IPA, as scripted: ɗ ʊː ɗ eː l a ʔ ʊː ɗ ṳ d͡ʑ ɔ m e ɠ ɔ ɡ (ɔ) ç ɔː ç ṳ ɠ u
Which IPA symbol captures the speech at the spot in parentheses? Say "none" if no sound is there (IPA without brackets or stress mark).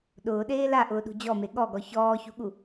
ɔ